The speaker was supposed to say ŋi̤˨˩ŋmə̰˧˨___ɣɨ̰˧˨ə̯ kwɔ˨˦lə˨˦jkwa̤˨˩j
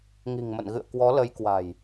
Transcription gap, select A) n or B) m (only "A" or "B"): A